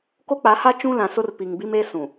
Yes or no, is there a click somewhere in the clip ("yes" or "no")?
no